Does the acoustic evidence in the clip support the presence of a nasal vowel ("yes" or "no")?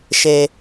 no